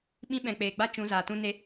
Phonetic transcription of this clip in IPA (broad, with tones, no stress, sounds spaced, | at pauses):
ɓ ĩ˦ ɓ ɛ̃˨ k͡p eː˨ ɡ͡b a˦ t͡ʃ ũ˨˦ z aː˨ t ũ˦ n e˦